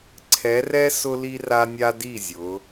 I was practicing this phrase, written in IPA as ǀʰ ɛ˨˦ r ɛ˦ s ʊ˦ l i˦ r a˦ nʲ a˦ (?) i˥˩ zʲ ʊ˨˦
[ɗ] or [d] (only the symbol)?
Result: d